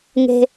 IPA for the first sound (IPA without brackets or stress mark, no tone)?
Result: ŋ